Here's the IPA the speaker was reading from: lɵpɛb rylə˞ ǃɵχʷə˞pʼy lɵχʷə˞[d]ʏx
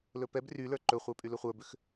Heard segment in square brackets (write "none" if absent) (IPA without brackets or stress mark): b